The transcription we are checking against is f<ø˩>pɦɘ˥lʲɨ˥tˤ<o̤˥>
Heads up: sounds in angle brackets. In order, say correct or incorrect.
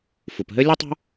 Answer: incorrect, correct

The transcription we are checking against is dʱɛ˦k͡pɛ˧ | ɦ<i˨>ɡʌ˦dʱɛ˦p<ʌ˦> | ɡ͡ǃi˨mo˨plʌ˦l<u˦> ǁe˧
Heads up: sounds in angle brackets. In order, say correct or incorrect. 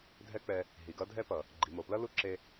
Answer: correct, incorrect, correct

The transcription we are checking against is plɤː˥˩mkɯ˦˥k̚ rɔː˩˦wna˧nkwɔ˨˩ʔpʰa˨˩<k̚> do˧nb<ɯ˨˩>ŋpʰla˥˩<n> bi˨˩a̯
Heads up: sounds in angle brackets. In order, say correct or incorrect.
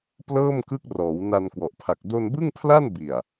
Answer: correct, incorrect, correct

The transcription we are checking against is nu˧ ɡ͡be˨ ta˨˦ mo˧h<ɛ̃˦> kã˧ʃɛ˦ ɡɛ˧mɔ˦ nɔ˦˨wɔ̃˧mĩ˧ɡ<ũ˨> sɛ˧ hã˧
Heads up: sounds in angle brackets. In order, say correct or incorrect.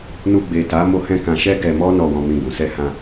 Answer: incorrect, correct

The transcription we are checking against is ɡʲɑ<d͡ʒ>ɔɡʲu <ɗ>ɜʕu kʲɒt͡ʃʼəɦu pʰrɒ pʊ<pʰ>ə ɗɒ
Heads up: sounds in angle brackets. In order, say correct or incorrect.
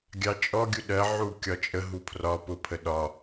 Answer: incorrect, correct, correct

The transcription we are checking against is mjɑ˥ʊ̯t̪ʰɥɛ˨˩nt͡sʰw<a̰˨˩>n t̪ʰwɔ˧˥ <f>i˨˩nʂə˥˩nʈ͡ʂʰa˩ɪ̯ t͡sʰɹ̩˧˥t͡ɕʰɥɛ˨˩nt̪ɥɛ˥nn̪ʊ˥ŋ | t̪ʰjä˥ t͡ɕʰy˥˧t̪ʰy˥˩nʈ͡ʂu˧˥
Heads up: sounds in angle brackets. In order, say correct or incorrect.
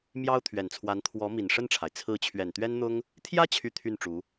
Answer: incorrect, incorrect

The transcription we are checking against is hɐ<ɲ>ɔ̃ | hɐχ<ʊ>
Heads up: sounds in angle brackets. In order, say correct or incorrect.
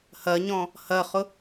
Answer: correct, correct

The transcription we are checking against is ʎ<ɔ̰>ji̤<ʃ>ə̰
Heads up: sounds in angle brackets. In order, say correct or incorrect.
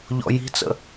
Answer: correct, incorrect

